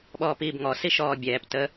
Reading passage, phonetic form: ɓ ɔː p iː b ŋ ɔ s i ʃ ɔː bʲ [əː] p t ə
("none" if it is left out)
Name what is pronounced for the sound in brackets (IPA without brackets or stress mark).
ɛː